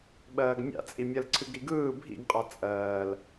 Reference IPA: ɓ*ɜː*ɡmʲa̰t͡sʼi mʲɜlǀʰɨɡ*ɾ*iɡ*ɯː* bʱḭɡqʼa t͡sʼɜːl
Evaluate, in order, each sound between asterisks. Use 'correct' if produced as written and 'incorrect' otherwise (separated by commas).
correct, correct, correct